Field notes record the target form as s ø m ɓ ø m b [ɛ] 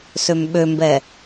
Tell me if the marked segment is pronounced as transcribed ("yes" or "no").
yes